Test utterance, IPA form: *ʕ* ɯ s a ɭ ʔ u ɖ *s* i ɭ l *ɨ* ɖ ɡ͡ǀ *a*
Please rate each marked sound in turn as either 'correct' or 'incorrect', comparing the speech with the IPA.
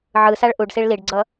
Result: correct, correct, incorrect, incorrect

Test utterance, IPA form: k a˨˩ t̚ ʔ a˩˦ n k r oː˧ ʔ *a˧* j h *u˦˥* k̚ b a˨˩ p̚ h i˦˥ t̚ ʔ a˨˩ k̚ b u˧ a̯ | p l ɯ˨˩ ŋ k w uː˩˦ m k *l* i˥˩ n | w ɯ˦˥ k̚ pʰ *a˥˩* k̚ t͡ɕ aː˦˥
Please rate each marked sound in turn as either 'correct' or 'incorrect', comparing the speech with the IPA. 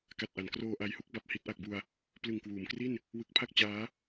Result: correct, correct, incorrect, correct

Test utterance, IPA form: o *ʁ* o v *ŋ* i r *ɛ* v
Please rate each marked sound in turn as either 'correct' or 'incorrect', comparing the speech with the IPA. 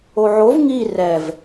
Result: incorrect, correct, correct

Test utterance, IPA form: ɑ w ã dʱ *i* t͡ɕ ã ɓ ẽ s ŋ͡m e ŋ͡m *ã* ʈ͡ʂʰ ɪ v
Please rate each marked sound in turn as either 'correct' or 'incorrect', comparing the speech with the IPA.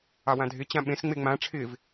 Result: incorrect, correct

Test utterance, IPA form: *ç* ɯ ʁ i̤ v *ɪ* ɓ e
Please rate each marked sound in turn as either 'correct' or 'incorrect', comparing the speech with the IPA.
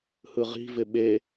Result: incorrect, correct

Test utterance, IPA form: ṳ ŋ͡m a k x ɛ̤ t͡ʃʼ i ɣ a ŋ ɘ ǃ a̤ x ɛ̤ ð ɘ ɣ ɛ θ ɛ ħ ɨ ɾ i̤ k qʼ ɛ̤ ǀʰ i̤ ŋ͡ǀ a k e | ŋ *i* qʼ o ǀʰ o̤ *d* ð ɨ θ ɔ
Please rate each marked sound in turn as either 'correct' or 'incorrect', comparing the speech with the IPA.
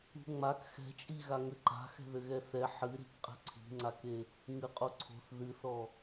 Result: incorrect, incorrect

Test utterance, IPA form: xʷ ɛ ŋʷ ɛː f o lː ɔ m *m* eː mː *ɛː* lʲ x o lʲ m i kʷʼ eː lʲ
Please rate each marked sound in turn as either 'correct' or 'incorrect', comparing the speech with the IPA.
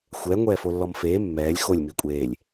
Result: incorrect, correct

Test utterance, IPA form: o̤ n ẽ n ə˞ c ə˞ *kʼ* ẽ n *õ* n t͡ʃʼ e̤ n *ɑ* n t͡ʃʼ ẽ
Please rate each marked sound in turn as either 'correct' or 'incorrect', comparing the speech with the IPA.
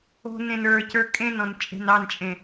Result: correct, incorrect, correct

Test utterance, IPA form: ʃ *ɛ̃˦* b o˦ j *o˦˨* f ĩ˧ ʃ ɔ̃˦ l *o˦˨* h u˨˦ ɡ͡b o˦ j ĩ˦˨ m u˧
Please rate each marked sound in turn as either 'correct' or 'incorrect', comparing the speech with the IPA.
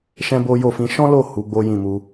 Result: correct, correct, correct

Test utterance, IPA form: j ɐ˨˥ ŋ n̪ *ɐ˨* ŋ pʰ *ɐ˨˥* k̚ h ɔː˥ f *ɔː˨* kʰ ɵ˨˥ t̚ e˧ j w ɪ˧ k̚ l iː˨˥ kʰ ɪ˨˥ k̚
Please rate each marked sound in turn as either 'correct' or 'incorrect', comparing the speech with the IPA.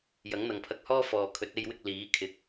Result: correct, incorrect, correct

